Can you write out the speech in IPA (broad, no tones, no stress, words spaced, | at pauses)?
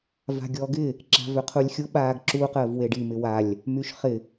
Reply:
va̤ɡʲɔɡɪ | ǁa̤vøqʰulʲxʲʊ ɓaːɡǁu qəːvweɖi mɪwalʲ | myʃχɪ